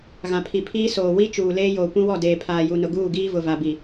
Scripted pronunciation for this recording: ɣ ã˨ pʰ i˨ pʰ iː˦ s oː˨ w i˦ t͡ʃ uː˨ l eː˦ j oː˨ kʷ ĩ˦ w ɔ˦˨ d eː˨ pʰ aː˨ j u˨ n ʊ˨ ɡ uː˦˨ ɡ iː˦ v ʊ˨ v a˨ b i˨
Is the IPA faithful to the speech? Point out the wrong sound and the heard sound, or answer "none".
none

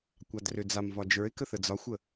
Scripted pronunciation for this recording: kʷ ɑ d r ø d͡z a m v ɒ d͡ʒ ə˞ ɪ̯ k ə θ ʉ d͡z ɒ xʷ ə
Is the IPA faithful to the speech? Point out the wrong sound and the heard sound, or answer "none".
ʉ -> ə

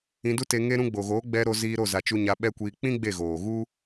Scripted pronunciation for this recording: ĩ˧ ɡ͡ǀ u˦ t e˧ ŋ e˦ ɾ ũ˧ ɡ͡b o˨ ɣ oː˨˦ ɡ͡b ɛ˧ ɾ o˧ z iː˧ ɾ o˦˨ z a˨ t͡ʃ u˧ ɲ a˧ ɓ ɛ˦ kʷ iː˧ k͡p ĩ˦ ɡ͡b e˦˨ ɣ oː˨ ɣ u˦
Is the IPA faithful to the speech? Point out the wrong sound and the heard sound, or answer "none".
ɡ͡ǀ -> d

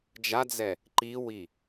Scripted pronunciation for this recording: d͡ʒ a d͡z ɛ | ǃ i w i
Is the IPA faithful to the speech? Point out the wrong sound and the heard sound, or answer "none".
none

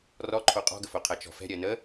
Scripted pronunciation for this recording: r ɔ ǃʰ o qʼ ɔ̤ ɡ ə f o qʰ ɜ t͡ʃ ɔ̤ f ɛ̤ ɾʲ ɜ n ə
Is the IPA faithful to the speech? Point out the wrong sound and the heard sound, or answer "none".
none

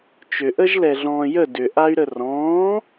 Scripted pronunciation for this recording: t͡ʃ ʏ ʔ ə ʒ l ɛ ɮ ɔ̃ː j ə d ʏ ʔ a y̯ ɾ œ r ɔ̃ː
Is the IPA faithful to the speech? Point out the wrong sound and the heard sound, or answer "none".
œ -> ə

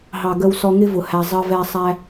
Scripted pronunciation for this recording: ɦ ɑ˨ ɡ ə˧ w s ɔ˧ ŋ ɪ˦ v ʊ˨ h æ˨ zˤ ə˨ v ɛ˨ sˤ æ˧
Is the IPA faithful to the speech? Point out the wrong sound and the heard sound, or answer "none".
none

